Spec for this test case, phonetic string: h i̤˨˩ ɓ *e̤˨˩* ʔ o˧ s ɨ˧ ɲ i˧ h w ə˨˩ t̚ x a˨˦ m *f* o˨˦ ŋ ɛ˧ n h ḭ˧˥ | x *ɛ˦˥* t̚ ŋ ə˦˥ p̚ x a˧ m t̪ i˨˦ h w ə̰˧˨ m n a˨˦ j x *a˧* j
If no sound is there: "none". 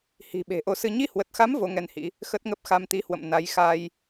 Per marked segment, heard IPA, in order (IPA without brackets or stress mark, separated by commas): e̤˨˩, v, ə˦˥, a˧